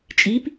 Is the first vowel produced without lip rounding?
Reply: yes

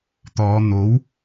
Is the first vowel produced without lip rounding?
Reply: no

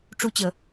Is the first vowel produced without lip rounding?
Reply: no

